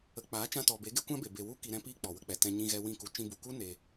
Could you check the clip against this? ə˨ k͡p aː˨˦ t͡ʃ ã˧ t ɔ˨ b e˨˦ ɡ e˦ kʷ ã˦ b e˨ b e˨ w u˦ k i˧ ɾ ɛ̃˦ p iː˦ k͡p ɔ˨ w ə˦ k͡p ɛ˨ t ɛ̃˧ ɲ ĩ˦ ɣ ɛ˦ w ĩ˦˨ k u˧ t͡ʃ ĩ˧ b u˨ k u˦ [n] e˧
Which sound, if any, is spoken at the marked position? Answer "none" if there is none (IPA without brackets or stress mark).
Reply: n